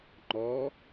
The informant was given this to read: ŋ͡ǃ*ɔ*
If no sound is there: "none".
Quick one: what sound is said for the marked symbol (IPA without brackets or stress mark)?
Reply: ɔ